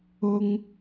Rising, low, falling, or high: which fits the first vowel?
low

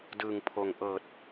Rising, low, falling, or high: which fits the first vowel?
low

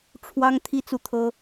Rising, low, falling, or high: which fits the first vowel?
high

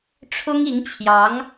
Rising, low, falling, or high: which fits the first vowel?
high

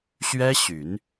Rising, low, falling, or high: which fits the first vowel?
high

